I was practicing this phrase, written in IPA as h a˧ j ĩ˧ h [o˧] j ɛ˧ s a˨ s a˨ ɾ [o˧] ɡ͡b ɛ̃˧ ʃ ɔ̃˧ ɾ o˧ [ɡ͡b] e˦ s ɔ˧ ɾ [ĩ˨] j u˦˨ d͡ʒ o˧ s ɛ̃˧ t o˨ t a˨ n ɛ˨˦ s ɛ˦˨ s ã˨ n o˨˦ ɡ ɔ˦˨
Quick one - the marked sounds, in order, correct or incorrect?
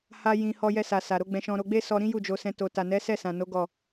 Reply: incorrect: ɔ˧, incorrect: o˨˦, correct, incorrect: ĩ˦

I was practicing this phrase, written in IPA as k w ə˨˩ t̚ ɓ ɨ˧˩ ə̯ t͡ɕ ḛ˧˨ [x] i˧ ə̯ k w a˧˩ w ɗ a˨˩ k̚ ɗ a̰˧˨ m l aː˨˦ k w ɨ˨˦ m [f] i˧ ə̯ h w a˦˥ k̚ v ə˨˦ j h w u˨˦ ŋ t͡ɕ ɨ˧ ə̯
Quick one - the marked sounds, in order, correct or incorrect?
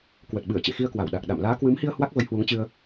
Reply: correct, incorrect: h

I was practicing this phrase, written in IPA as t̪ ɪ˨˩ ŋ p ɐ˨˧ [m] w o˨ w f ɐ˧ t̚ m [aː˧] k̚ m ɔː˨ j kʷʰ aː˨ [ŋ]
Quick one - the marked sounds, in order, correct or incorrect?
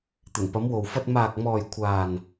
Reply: correct, incorrect: aː˨, incorrect: n

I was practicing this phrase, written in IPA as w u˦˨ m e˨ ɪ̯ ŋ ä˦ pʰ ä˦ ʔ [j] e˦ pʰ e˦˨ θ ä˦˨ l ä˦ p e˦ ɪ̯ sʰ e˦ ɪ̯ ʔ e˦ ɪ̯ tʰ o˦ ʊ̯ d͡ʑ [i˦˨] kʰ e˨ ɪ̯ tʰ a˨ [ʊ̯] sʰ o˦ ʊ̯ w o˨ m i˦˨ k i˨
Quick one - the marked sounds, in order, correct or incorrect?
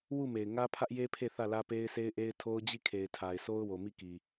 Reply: correct, correct, incorrect: ɪ̯

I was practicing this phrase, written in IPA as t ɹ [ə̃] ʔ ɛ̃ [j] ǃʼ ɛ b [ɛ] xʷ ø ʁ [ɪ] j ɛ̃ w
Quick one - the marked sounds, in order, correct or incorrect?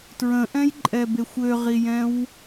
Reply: correct, correct, incorrect: e, incorrect: i

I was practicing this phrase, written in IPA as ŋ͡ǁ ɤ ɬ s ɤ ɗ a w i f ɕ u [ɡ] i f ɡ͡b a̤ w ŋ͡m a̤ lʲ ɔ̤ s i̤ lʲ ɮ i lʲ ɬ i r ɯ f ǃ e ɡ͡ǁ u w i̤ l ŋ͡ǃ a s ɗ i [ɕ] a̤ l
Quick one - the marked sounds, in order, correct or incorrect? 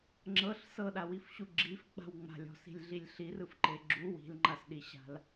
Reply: incorrect: ɡ͡ǁ, correct

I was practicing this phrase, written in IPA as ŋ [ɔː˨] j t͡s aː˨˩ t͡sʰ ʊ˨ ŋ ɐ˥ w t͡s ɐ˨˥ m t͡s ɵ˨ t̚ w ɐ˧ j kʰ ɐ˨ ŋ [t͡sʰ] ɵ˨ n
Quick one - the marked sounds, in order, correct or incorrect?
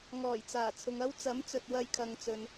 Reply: incorrect: ɔː˨˩, incorrect: t͡s

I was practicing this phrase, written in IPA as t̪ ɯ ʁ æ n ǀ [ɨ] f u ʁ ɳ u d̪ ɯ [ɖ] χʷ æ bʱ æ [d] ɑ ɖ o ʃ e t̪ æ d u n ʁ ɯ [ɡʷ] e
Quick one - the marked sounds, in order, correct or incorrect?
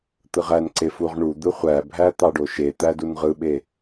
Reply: incorrect: e, incorrect: none, incorrect: t̪, incorrect: ɓ

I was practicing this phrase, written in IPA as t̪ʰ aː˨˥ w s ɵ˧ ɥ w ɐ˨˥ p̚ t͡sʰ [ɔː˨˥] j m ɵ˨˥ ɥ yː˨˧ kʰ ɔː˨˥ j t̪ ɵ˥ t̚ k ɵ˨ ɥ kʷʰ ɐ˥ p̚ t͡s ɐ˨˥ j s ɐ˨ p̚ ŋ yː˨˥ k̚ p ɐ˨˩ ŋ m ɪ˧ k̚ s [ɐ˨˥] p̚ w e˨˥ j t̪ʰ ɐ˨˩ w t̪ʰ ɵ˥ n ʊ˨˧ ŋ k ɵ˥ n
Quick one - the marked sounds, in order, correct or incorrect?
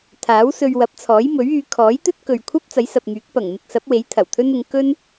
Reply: correct, correct

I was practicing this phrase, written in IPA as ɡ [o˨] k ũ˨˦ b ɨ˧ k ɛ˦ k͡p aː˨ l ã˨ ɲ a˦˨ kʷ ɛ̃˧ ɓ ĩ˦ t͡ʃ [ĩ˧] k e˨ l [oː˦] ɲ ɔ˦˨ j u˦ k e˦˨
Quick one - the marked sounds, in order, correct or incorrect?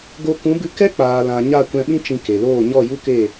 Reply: incorrect: o˧, correct, incorrect: oː˦˨

